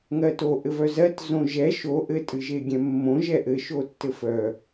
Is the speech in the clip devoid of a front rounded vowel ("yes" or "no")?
no